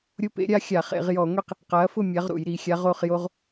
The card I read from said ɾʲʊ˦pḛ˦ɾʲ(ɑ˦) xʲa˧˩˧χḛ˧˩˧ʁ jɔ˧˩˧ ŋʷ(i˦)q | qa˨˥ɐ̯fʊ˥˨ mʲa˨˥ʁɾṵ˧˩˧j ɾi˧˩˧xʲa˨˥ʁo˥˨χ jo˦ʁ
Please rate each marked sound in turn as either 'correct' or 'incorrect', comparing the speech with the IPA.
incorrect: a˦, correct

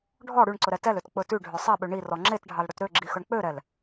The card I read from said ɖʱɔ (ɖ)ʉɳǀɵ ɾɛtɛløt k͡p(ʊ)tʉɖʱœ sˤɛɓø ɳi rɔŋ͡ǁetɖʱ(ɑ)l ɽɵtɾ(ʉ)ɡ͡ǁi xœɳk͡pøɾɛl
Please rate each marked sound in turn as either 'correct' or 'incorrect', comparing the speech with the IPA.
incorrect: ɽ, incorrect: ɵ, correct, incorrect: ø

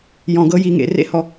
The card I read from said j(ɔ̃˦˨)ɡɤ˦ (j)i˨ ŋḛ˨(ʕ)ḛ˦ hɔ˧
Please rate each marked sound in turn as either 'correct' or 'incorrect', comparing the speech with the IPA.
incorrect: ɔ̃˨, correct, incorrect: r

